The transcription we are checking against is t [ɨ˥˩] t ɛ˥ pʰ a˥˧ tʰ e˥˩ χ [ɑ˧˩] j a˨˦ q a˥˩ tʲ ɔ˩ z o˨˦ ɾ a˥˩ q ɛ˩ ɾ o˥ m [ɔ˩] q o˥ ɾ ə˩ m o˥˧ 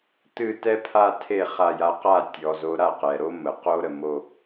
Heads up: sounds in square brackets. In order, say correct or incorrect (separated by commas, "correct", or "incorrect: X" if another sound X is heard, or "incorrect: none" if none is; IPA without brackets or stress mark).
correct, incorrect: a˧˩, incorrect: ə˩